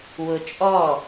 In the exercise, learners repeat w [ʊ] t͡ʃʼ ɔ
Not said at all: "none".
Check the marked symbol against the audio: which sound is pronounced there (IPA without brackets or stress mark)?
ʊ